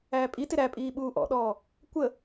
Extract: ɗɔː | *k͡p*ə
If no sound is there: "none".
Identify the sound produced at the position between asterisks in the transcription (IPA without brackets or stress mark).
kʷ